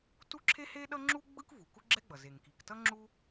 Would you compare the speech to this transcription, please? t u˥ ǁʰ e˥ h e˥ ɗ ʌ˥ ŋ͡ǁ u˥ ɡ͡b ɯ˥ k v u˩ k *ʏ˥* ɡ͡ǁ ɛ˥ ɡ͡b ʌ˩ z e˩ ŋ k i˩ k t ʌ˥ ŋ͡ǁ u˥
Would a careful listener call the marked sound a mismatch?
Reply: yes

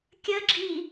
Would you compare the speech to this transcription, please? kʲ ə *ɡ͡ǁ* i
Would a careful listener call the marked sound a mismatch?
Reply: no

